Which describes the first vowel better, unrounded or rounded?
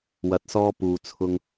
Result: unrounded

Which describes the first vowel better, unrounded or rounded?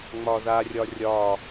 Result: rounded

